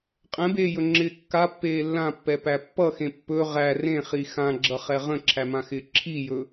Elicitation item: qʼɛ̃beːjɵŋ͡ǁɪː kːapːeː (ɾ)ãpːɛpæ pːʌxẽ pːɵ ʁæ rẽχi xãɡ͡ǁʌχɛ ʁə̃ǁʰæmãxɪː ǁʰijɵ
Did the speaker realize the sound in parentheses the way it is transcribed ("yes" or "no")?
no